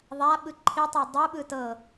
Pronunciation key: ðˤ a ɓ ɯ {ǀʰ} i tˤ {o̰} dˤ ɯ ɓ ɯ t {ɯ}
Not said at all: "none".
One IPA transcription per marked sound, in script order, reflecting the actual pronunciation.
ǃʰ, o, ɤ

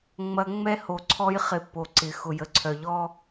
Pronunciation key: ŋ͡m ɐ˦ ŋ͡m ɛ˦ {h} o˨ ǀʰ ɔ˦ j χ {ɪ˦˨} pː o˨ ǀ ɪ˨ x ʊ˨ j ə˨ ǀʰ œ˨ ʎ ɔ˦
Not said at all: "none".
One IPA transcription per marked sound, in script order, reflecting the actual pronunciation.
h, ɪ˨

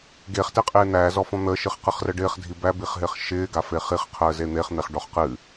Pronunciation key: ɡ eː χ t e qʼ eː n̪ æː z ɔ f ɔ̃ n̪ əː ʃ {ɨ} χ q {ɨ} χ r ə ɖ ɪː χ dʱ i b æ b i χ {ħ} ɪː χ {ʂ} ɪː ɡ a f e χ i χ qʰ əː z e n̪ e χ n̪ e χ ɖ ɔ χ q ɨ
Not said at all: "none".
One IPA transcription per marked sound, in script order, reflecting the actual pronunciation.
ɨ, ɨ, ɦ, ʃ

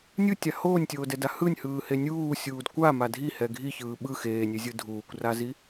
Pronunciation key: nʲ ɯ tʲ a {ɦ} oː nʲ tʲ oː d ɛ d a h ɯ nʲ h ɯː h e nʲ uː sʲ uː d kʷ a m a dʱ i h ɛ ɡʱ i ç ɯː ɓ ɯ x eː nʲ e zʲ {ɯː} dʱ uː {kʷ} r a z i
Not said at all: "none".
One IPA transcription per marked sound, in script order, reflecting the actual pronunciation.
h, ɯ, kʷ

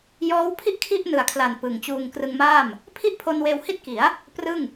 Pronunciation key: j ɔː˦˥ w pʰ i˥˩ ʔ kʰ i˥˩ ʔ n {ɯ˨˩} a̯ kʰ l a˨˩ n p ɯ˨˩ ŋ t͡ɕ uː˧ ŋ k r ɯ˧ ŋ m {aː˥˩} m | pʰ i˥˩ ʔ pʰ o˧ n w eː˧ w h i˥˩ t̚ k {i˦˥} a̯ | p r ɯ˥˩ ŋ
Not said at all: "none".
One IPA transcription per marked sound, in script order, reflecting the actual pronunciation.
ɯ˨˩, aː˥˩, i˩˦

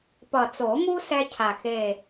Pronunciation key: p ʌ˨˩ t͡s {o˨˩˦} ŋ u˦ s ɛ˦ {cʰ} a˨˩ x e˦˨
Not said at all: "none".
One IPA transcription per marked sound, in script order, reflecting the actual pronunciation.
o˨˩˦, cʰ

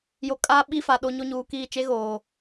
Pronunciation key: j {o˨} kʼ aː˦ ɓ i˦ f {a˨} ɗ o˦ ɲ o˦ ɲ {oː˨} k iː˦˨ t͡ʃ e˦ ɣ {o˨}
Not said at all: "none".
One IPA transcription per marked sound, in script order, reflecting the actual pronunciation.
o˨, a˨, uː˨, oː˨

